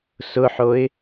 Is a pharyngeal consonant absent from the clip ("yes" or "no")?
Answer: no